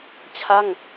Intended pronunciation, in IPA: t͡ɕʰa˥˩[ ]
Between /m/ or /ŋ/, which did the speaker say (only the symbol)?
ŋ